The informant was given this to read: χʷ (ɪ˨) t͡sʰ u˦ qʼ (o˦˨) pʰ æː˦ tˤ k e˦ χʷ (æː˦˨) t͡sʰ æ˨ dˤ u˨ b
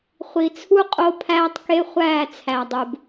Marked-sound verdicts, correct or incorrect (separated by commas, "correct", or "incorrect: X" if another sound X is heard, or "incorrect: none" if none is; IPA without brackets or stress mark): incorrect: i˨, incorrect: o˦, correct